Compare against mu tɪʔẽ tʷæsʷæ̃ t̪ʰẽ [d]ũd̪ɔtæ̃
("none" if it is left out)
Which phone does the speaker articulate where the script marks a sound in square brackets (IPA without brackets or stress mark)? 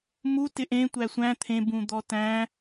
b